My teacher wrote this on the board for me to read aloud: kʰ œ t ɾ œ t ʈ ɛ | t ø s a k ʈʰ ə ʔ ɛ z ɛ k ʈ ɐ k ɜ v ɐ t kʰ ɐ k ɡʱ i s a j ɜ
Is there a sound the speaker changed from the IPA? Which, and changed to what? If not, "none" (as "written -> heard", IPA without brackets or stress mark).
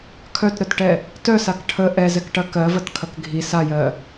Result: ø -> œ